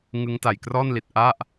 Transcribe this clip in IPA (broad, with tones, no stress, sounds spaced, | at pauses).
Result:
ŋ ɯ˦˥ ŋ t a˨˩ j k r ɔː˥˩ n l i˨˩ t̚ ʔ a˥˩ ʔ